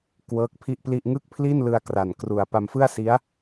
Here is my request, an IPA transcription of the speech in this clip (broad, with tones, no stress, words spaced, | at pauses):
kwɤː˦˥k̚pʰi˥˩ʔpli˥˩ʔ ŋɯ˥˩k̚pʰli˥˩nlɯ˧a̯ kra˨˩n kru˨˩a̯ pa˧mfɯ˥˩a̯si˦˥a̯